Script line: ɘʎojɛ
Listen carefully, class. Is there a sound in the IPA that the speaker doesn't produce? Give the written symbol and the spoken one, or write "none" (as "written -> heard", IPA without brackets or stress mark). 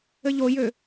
ɛ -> ø